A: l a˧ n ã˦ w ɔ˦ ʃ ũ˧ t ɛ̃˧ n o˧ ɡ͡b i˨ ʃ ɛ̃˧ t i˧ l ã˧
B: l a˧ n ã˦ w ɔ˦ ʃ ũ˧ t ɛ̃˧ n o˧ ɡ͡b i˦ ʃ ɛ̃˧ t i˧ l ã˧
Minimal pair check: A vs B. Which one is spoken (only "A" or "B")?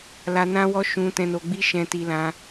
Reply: B